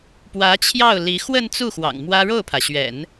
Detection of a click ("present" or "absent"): absent